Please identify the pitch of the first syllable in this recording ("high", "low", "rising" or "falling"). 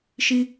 high